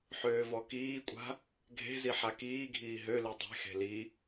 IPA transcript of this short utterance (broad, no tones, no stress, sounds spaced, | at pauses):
ħ øː v ɔ k iː kʷʼ a̤ | ɡʱ e̤ z i ħ a k iː ɡʱ iː ɦ ø l i dˤ e̤ x e̤ l i